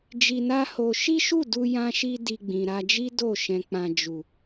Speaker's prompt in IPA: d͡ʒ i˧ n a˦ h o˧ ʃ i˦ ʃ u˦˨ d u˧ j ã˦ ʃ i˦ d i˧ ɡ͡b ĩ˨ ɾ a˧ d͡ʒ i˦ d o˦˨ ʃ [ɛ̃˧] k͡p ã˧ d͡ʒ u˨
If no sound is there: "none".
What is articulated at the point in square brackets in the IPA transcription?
ɛ̃˧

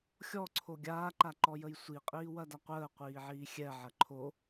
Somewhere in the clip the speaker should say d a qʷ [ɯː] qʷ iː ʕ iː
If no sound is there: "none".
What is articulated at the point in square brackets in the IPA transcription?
əː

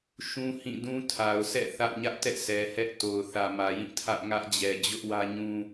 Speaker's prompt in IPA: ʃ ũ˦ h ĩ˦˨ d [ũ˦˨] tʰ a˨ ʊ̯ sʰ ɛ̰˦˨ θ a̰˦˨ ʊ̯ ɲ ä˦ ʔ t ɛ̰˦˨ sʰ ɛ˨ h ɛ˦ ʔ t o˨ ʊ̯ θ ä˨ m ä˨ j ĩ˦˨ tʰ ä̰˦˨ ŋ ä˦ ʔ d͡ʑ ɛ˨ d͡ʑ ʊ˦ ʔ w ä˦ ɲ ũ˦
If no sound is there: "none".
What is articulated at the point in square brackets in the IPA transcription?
ũ˦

